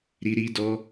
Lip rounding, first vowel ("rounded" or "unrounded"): unrounded